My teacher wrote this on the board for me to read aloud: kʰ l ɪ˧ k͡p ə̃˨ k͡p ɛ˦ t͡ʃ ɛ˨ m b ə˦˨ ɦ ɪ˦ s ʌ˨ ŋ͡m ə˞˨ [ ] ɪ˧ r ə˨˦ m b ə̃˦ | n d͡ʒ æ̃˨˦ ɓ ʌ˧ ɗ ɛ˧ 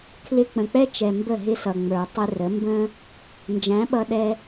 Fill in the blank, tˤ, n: tˤ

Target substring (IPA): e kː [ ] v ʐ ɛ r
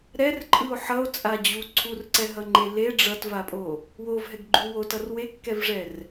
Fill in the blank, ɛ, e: ɛ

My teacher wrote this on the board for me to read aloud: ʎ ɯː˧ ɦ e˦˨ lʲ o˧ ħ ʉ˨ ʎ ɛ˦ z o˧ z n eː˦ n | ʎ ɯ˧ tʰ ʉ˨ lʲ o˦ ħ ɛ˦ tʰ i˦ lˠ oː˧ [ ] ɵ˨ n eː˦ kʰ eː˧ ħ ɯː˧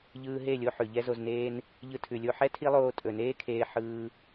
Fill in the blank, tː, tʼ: tʼ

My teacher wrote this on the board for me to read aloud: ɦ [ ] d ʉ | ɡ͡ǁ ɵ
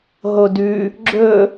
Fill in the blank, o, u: o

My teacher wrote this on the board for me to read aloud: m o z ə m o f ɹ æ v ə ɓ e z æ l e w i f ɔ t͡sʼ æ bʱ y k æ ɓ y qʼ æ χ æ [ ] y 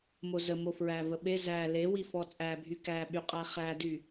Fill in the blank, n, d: d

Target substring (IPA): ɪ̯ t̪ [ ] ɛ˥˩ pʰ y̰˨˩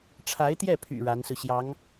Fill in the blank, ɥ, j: j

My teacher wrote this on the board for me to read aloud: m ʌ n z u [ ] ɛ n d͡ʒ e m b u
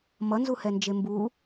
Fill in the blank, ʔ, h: h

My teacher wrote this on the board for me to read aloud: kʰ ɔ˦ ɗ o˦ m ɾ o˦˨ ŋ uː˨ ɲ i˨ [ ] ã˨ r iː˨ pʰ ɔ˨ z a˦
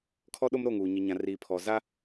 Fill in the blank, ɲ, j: ɲ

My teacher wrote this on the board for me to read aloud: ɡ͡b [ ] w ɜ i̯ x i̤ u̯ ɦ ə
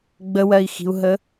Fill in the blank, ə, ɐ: ə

